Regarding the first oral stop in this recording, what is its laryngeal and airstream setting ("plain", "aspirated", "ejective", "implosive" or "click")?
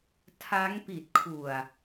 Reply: aspirated